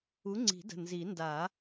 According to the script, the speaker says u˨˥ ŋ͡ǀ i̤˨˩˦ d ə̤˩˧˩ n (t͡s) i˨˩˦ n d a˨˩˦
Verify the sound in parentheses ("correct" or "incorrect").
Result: incorrect